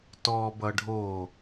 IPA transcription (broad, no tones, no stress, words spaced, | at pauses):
tɔ bʌɖʱo